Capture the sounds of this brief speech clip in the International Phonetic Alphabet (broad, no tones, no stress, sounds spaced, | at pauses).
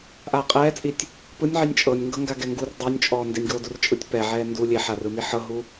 ʔ aː qʼ ɛː t͡sʼ i tʲ | p ɯ nʲ ʕ i nʲ t͡ʃʼ ɤ nʲ ŋ ɡ ɤ ŋ ɡ a ɡ ɛ ŋ ɡ u r dˤ o nʲ t͡ʃʼ ɔː n d e nʲ ɡ oː d u r t͡ʃʼ ɯ tʲ p ɛ ʕ ɛː n d u lʲ e ħ a r ɯ m i ħ ɤ ɦ u